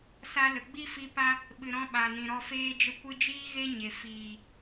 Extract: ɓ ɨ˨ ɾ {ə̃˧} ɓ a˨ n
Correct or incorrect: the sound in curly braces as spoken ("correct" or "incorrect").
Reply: incorrect